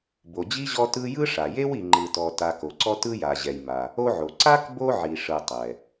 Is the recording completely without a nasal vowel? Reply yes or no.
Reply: yes